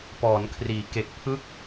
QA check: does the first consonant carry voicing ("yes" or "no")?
no